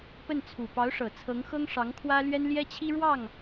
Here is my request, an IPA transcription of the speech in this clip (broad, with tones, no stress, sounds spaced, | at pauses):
p ə˥˩ n t͡sʰ u˨˩ p ɑ˧˥ ʊ̯ ʂ ɤ˨˩ t͡sʰ ɤ˧˥ ŋ x ɤ˥ ŋ ʂ ɑ˧˥ ŋ kʰ w ä˥ l ɥ ɛ˥ n l j ɛ˥ t͡ɕʰ i˥ ɻ w ɑ˥˩ ŋ